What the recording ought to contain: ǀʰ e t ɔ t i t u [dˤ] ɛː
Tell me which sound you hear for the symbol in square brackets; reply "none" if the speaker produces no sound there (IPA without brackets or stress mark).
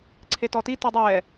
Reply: dˤ